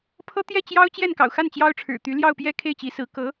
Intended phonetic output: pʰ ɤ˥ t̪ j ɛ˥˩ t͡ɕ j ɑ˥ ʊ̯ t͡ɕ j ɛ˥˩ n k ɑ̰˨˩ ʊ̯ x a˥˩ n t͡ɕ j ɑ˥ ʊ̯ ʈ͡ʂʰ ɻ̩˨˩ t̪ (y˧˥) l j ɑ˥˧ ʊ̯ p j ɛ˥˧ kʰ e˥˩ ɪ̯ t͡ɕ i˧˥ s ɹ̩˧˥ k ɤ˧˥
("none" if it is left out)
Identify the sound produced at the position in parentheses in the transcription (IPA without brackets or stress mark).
y˧˥